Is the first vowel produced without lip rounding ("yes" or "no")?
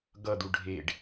yes